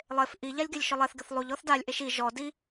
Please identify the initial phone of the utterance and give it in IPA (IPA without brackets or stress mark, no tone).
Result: lˠ